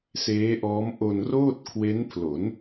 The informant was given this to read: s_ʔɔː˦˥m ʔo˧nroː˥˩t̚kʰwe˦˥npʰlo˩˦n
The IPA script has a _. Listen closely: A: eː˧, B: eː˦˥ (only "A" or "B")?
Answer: B